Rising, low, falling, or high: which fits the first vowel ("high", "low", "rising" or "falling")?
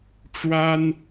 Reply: high